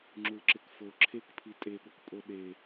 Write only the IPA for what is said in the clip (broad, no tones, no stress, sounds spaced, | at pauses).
ŋ͡ǁ u l ǁ ɪ k f o ǁʰ e k pʰ i tʼ e ɠ o k pʼ o ɗ e